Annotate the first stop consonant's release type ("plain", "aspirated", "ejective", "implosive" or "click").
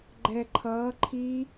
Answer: click